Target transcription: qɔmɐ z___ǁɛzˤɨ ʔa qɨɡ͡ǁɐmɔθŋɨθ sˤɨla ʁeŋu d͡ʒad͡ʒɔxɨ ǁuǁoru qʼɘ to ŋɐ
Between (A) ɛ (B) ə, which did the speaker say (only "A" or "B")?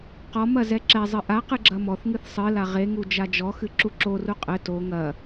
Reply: A